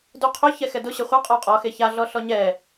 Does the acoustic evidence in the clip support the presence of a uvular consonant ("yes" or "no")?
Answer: yes